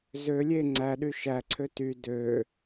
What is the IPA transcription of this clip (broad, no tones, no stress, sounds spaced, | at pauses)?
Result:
z ø lʲ e ŋ͡ǀ æ ɗ y ʃ æ ǀʰ ø t y d ø